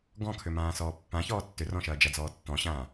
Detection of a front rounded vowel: present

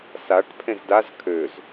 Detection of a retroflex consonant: present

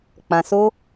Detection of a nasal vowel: present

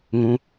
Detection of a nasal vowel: present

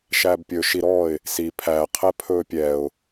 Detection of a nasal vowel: absent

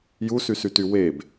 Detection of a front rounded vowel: present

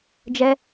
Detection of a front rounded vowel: absent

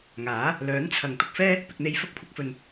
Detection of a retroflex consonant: absent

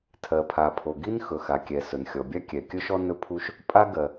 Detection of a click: absent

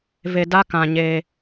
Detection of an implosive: absent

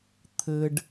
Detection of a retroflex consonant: present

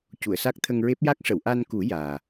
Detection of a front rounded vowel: absent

